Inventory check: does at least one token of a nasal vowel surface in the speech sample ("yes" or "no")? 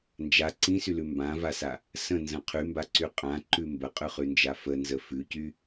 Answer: yes